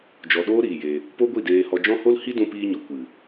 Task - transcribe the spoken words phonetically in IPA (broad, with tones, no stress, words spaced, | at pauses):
d͡ʒɔ˨ɗoː˦ ɾiː˨je˧ | po˦ɡʷi˦˨deː˧hɔ˧ d͡ʒɔ̃˦ho˦l hi˦dũ˧piː˧ɲɔ˨ kʷɨ˨